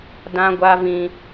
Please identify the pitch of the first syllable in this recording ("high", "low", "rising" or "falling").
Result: high